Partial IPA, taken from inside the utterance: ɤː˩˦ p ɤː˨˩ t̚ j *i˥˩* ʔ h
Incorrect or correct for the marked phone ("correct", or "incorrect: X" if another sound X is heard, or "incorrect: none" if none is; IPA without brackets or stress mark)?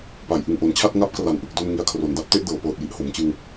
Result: incorrect: i˨˩